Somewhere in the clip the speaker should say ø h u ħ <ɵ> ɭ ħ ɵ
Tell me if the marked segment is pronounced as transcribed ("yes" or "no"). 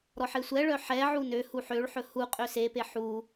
no